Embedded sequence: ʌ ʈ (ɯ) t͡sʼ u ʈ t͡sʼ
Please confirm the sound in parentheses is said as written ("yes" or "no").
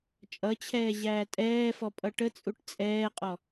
no